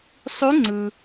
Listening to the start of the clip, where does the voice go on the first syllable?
rising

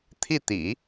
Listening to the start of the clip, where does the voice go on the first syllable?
falling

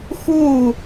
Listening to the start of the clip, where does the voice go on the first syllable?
falling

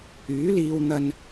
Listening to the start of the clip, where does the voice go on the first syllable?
rising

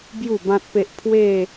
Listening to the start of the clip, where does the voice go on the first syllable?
low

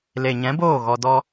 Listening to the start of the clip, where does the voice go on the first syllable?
low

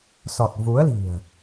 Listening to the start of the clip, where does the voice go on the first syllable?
low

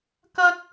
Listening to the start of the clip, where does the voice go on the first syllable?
high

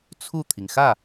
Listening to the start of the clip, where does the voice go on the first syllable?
falling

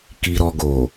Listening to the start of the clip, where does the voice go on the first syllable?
low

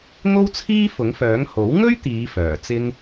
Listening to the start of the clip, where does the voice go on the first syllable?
high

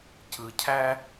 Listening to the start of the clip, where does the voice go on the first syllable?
low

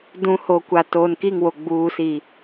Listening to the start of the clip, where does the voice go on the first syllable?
rising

